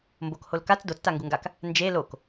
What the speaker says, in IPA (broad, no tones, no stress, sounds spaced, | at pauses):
m b o k h o l k a t͡s d o t͡s t a ŋ ɡ u ŋ ɡ a k | n d͡ʒ e l o k